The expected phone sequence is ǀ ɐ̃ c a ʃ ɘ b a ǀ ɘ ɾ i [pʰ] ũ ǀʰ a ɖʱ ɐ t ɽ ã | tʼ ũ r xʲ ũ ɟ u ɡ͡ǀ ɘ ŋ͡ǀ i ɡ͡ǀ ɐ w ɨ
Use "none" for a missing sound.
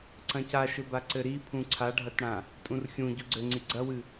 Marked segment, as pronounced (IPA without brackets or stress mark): pʰ